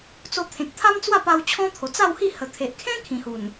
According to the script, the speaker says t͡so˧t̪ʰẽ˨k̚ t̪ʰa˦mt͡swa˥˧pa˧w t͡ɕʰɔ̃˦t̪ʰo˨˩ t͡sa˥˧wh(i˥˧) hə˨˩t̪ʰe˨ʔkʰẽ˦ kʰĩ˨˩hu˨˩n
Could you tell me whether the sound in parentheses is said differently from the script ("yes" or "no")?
no